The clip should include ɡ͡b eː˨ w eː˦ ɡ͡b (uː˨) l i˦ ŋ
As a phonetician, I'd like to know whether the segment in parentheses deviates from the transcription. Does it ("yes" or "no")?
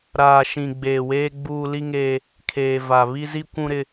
yes